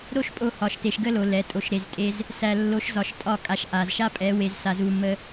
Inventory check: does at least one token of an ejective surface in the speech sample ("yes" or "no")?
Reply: yes